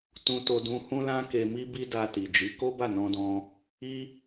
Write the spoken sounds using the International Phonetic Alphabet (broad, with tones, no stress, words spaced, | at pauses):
tũ˧to˧dũ˧ hũ˦lã˦ke˧ mi˦ bi˦ da˧ti˨d͡ʒi˨˦ ko˦ba˦˨nɔ̃˧dɔ̃˧ | i˦